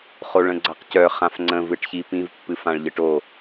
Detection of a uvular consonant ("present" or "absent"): present